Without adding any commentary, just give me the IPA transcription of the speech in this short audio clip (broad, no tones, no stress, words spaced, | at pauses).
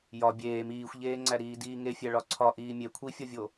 jɒ bʲeːm iːxʷʎeːŋ͡ǀæ ɾiːdiːŋefʲæ ɭɒǀʰɒ ʔiːmʲe kʷʰifʲɒvʲo